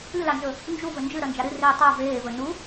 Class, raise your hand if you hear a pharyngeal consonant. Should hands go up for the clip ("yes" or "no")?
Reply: no